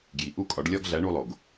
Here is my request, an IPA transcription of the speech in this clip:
ɡ j i˩ ʔ u˥˩ kʼ ɒ˩˥ ɖ lʲ ɒ˧ ɡ ɮ æ˩˥ ɳ u˧ lˠ o˩ ɡ

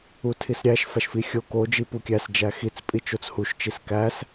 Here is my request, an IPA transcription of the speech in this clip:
u tʰ i s ɾʲ æ ʃ f æ ʃ f i xʲ o k o d͡ʒ i p u kʲ æ s d͡ʒ æ x i t͡s pʼ i t͡ʃ o t͡s h u ʃ t͡ʃ i s k æ s

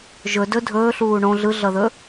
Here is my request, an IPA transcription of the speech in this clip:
ʒ ɵ d ɵ dʱ ɵː ɬ uː ɳ õ ɮ ɯ ɮ ʌ ð ɵ

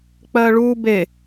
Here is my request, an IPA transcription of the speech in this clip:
k͡p ɜ ɭ u b e

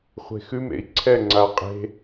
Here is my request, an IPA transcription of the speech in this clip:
χʷ e̤ x ʉ m ḛ i̯ ǀʰ ɛ ŋ͡ǀ a qʼ e̤

